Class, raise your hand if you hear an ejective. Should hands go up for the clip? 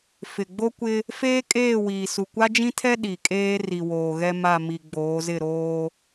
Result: yes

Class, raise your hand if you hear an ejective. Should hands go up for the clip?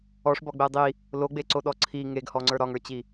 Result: no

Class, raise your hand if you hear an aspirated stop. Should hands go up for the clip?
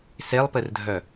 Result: no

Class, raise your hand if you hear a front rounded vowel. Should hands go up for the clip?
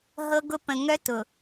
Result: yes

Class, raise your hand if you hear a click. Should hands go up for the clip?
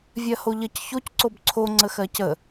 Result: yes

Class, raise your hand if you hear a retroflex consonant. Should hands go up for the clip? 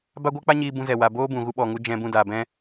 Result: no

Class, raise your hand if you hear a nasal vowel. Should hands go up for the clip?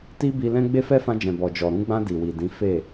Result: yes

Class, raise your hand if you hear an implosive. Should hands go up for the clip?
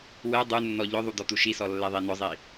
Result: no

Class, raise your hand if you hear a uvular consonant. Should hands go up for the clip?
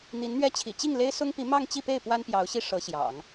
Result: no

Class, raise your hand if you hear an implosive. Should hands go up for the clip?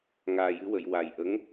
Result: no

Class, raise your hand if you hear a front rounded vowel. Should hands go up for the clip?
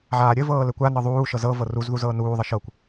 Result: no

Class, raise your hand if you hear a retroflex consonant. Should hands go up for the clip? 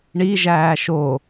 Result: yes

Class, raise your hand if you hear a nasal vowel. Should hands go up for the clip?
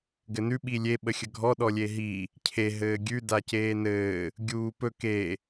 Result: no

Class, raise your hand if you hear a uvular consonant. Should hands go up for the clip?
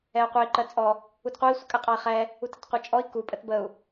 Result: yes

